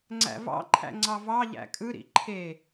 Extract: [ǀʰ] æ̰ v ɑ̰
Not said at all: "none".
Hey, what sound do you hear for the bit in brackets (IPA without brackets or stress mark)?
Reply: ŋ͡ǀ